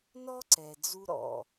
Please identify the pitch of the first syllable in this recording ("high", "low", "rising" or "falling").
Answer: high